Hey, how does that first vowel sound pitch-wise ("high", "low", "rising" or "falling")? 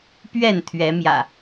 falling